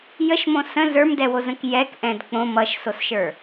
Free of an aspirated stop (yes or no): yes